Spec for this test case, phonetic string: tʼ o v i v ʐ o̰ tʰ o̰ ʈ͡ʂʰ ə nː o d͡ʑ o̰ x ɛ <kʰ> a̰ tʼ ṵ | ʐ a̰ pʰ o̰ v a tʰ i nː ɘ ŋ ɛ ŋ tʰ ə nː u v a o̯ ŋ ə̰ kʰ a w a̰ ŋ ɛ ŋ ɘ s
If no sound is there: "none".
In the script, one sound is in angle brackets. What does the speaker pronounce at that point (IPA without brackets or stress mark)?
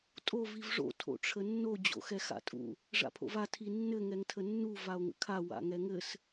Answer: x